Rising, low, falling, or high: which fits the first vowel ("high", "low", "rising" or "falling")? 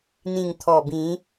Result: low